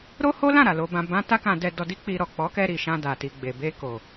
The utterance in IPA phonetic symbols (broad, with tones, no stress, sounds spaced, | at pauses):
ɾ o˦ h o˦ l ã˦˨ ɾ a˨ l o˧ b ã˧ b ã˦ t a˦ k ã˧ d ɛ˧ d ɔ˧ d i˦ k͡p i˧ ɾ ɔ˨ k͡p ɔ˨˦ k ɛ˧ ɾ i˨ ʃ ã˧ d a˨ t i˨ ɡ͡b e˨ b e˧ k o˨